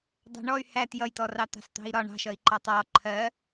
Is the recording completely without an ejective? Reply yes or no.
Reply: yes